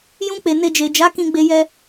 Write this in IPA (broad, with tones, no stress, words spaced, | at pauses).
jũ˧k͡pe˨ ne˨ d͡ʒe˨d͡ʒa˨˦kĩ˧ ɡ͡be˧jɛ˧